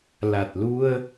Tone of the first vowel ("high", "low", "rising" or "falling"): low